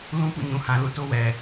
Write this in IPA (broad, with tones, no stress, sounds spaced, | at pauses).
l ũ˦ p ṵ˦˨ ɲ ũ˨ h ã˨ l ṵ˦˨ t o˦ w ɛ˨